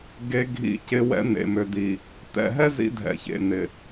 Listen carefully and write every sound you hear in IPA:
ɡ e˦ ɡʱ ḭ˦ c ɪ˦ w ɛ̰˦ n̪ ḛ˨ m ø˨ d̪ i˨ | t̪ ɛ̰˨ ɦ ɛ˦ z ḭ˦ dʱ ɛ̰˨ ç ḛ˨ n̪ ɪ˨

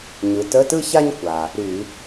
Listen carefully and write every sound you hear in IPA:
ɲ ɯ˩˧ t ə˧˥˧ t ɯ˥ ç a˥ ɲ kʷ a˩ | ɾ y˧˩˧

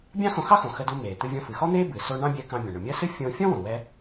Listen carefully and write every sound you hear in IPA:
bʲ ɑ̃˥ x õ˧ x ɑ˥ x õ˩ x ə˧ d u˧ m eː˩ t̪ ɨ˧ vʲ ɔ̃˧ f ɨ˩ x ɔ˥ n̪ eː˥ b ɨ˩ s o˧ ɳ ɑ̃˥ bʲ ɛ˧ k ɑ̃˧ bʲ õ˩ ɳ ɵ˩ mʲ əː˥ s ɨ˥ fʲ õː˧ fʲ ɔ̃˥ w õ˩ w ɛ˧

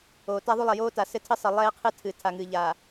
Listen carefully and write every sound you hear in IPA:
oː˨ t a˦ ðˤ u˦ lˠ ɛ˨ j oː˦ t a˨ s ɘ˦ tʰ ɘ˦ sˤ ɘ˨ lˠ ɛː˦ qʰ ɨ˦ tʰ ɨ˨ tʰ a˨ ŋ ɨː˨ ʎ aː˨

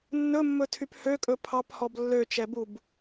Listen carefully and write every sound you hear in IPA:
nː ɵ mː ɵ tʰ y p h ø kʼ ɵ pʰ ɑ p h ɔ b lː ø t͡ʃ ɛ b u b

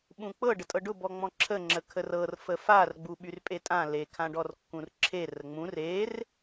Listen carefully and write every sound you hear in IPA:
ɓ ũ k͡p ɤ ɖ ə tʼ ɤ ɖ ʊ b ɔ ŋ͡m ɔ̃ ǁʰ ə ŋ͡ǁ ə kʰ ə r ɤ r f ə f a r ɡ͡b u ɓ y r pʼ e tʼ ã l e kʰ ã ɖ ɔ r kː ũ r ǁʰ e r ə ŋ͡m ũ r e r

